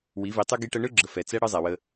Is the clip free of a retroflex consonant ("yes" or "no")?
no